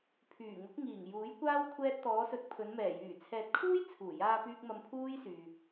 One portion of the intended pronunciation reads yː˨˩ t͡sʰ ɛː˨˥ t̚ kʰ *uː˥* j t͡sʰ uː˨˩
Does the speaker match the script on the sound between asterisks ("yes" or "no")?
yes